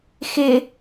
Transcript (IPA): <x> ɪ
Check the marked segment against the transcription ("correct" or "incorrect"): correct